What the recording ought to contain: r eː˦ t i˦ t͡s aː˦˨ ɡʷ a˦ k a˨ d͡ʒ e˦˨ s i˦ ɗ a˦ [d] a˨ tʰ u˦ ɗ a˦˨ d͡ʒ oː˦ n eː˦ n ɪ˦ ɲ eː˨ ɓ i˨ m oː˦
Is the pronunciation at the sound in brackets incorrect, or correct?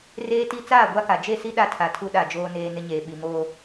incorrect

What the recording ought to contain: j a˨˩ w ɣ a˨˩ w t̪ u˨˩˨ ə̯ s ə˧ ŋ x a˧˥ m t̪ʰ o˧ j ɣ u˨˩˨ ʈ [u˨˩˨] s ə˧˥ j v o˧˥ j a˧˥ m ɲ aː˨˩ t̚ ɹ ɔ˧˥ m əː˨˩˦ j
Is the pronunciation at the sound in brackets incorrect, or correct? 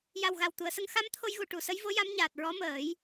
correct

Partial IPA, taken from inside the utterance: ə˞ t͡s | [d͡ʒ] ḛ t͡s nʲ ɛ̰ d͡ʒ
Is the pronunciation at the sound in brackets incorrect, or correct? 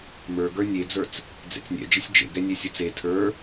incorrect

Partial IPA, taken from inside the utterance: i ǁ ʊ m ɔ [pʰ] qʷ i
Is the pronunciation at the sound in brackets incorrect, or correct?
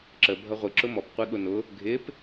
incorrect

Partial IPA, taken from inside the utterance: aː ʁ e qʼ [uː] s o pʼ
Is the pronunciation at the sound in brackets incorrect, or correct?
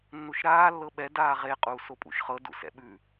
correct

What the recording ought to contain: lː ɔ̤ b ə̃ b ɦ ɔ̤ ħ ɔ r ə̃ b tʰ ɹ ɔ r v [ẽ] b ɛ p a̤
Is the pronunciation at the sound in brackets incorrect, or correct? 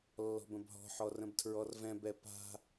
incorrect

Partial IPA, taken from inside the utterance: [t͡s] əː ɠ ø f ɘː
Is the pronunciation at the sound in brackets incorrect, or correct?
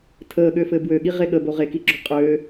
incorrect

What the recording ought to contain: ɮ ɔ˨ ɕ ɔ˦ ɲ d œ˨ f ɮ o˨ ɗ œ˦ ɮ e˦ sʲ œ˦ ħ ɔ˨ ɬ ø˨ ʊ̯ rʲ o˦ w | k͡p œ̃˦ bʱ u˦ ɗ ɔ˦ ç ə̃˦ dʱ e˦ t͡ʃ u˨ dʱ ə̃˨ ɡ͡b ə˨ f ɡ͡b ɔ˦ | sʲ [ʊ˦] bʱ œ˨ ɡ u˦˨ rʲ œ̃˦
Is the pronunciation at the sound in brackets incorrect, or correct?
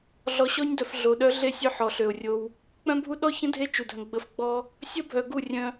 incorrect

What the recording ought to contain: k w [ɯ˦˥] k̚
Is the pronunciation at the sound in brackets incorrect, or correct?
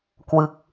correct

